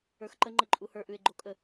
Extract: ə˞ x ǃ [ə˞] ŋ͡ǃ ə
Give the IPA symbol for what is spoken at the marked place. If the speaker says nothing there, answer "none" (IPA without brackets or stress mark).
ə